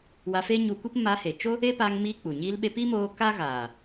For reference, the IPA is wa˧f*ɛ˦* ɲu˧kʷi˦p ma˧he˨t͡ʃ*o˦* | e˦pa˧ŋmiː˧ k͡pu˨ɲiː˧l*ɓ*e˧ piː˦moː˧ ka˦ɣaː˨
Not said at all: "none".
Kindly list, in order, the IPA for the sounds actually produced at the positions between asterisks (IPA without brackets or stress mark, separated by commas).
e˦, o˦, ɓ